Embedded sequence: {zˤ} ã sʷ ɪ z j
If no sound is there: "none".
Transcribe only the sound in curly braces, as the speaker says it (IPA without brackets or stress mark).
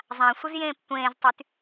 zˤ